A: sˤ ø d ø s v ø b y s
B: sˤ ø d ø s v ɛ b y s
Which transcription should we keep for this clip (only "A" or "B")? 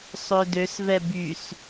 B